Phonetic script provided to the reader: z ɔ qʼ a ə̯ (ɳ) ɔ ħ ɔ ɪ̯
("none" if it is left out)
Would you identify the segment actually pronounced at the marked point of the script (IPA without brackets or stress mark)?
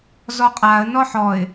n